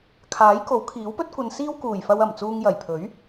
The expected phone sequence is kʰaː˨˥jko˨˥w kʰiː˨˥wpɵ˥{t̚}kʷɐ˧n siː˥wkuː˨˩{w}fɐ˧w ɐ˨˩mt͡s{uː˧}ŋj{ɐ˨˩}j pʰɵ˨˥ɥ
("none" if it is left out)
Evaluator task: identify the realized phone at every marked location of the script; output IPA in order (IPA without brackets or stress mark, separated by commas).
t̚, j, uː˧, ɐ˨˩